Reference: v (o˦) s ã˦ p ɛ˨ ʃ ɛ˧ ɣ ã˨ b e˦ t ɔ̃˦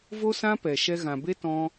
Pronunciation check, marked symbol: correct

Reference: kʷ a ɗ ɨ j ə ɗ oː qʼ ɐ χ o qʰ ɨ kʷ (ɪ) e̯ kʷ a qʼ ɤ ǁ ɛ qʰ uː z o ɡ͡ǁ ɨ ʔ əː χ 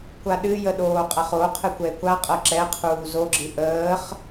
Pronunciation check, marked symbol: incorrect: ɛ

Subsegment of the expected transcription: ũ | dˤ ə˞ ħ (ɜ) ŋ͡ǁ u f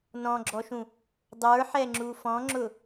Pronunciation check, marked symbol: incorrect: ɛ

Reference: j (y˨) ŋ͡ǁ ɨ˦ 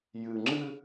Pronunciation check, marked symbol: incorrect: ɨ˨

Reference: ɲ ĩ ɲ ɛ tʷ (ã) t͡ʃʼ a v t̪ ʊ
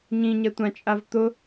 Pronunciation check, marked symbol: correct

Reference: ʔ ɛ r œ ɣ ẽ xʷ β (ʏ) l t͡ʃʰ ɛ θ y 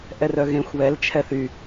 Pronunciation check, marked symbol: incorrect: ɛ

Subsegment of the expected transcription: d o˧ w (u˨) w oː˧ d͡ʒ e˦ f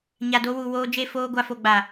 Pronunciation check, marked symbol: correct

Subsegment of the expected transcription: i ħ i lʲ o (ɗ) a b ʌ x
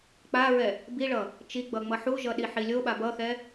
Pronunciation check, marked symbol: incorrect: ɓ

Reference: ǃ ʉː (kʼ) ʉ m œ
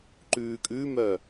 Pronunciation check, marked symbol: correct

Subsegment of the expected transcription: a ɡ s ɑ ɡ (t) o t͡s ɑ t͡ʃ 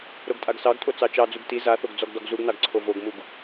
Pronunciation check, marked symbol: incorrect: tʼ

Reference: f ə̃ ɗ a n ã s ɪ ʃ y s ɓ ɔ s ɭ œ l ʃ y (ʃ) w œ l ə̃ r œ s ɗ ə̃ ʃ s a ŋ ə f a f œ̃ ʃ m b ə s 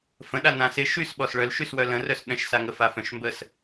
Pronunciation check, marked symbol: incorrect: s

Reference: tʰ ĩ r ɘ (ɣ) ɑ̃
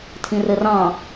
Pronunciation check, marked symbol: incorrect: r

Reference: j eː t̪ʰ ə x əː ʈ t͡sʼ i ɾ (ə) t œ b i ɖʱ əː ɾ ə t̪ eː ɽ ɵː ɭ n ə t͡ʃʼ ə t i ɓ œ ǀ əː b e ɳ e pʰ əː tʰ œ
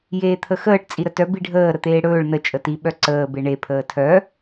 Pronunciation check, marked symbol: correct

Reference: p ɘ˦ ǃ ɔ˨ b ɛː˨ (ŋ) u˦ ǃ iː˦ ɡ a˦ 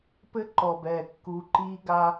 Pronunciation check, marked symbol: incorrect: kː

